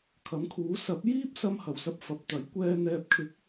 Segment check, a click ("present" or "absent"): absent